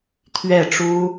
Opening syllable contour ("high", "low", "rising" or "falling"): falling